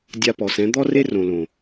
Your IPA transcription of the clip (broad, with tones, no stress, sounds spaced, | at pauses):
dʲ a˧ p ɔ˨ s ɛ̃˨˦ d̪ ɔ˦ r e˦ r õ˨ l õ˨